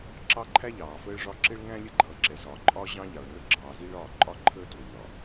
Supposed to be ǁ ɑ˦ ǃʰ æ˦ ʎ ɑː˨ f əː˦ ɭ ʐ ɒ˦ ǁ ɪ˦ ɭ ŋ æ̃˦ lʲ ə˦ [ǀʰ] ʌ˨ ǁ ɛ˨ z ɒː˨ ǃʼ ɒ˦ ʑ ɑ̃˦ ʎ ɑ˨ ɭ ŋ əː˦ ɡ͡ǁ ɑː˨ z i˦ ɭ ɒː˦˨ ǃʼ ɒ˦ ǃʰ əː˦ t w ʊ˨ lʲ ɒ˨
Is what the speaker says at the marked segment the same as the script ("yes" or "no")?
no